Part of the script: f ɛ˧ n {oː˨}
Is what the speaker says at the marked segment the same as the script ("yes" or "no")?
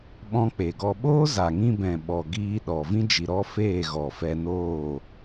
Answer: no